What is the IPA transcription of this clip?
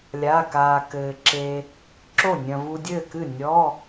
lʲaː˧˥˧kaː˧ kɘː˧ ǁe˧ | ǁo˥˩ nʲɐ̃˧ vu˧dʲɘː˥˩kɨ˥˩ nʲɔ˧˥˧

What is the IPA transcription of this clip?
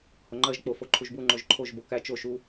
hoŋ͡ǃɜʒ k͡po foǃʰuʒbu ŋ͡ǃoʒǃʰoʒ bokæ t͡ʃoʃ u

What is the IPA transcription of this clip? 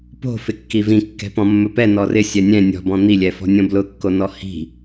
po̤ fɪkːivĩ kːɛ̤pɔ̃mːɵpɛ nɔrɪ sʲɛnʲɛ̃ nʲɔ̤bɔ̃ n̪ilʲɛfɔ̤ nʲõblʊkːonɔ hi̤

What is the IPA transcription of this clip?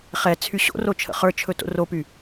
χɛ t͡sʰyɕo̰ro t͡ʃʰə̰χə˞t͡ʃʰɵ to̰ropy

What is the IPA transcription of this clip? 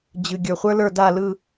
d͡ʑɨ˩ ɡʲə˞˩χʷə˞˦lə˞˦˨ da˦˨lɯ˦˨

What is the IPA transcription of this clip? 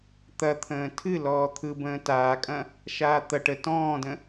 t̪ɐt̪ʰə̃ː tʰɨ lɔːt̪ʰɯ bə̃ːtaːkʼɐ̃ | ʃaːt̪ɐʈ ə tɔ̃ːdə̃

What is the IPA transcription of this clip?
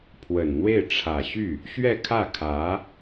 pʰwə˨˩nn̪we˥˩ɪ̯ ʈ͡ʂʰä˨˩ ɕy˥˩ | ɕɥɛ˥˧kʰä˥˩kʰä˧˥

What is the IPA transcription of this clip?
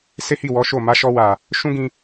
se˦hi˦˨ wɔ˨˦ʃo˦˨ ma˨˦ʃɔ˧wa˨ | ʃũ˦ɡĩ˧

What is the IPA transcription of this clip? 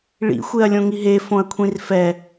ɭḭ xʷeɐ̯lʲõŋiɦe fõɐ̯kʷʰĩrfɛ

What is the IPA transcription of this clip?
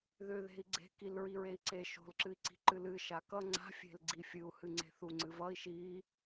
ðʏ ðe̤i̯ɡ͡ǀe̤ kilɹiɹei̯ǀe ʃo̤lǁɨi̯ǀi̤ǃɨl ɨʃa kʌ ŋ͡ǀa̤fʲe̤l ɡ͡ǀifʲɨu̯hɨ ŋ͡ǀe̤θuŋ͡ǀɨvʌi̯ ʃi

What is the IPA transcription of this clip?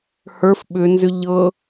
hə˞f ɓʏnzʏ ʎɤ

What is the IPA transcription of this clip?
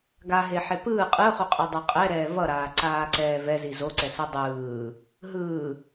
ɡaɦeħe pɯː qʼɯχuqʼɯdˤʌ qʼɛɾɛː vʌɾaːǀaːǀɛː vɛzi zoǀɛsɯ dˤɯː | ɦɯː

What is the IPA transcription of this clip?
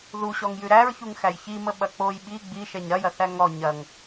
ðuɕɔŋjʉ ɾæɹçuŋxæj çiməɓɐ k͡poj ɓi ɡ͡biʃɛɲ ɾɐjɐθæ ŋɔ ɲɐŋ

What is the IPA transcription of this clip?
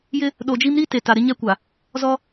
jɪ˦ | ɗo˨d͡ʒi˦mɾi˦ te˨ ta˨ɾɪ˦ɲɛ˦ kʷa˨ | zɔ˦

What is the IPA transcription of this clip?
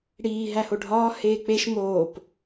ɽiː ɦæhoɖʱɒː heːk͡peʃ moːp

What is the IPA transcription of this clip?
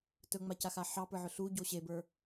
tɵŋ͡macaxa ħɑpə˞ʕɵ ɬuɟo ɕebə˞

